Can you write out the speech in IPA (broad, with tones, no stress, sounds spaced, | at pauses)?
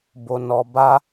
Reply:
b o˨ n ɔ˨ b a˧